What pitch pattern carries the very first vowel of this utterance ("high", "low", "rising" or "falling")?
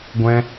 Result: high